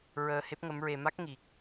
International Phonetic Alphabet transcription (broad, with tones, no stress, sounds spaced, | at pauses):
ɹ əː˧ h e˦˥ p̚ ŋ ə˧˥ m ɹ e˧ m a˦˥ k̚ ŋ i˨˩ k̚